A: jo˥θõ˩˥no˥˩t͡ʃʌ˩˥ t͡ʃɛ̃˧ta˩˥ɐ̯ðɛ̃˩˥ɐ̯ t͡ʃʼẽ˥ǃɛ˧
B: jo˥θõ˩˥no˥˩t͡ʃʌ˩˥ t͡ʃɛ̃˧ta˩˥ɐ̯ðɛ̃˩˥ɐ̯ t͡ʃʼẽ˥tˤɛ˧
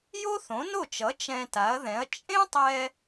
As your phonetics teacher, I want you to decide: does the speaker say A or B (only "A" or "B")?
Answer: B